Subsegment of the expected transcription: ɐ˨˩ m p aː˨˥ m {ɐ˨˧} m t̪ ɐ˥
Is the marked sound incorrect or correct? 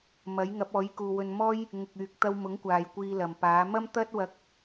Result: incorrect